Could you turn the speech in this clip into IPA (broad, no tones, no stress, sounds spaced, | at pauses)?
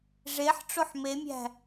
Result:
ʐ e ħ ʈ͡ʂ o ħ m e mʲ æ̤